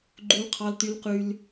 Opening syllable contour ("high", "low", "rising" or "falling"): high